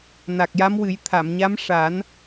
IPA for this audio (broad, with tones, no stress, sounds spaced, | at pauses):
n a˨˩ k̚ j a˧˥ m w ɨ˨˩˦ j t̪ʰ a˨˩˨ m ɲ a˧˥ m ʂ a˨˩˦ n